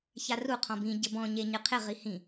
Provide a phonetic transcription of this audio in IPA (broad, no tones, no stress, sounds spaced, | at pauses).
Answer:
ç a r u qʰ ɔ̃ b ĩ ɟ ɘ b ɔ̃ ɲ e ɲ ɨ qʰ e ʁ i h ĩ